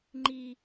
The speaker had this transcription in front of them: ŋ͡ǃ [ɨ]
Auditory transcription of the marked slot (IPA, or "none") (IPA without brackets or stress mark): i